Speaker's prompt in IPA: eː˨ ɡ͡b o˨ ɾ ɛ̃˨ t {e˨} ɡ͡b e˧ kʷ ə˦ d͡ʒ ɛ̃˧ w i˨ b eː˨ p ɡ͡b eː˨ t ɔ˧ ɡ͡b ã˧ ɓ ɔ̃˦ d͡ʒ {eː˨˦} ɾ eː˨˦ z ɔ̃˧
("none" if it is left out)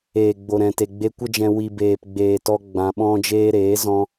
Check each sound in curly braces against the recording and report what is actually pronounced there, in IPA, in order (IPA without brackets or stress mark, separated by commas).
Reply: e˨, eː˦